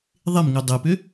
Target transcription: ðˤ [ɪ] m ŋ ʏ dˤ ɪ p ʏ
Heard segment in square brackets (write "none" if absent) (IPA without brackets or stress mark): ɪ